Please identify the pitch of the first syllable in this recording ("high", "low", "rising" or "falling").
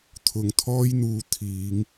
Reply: low